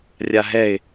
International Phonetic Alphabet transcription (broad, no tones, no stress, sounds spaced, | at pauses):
rʲ a ɦ ɛ ɪ̯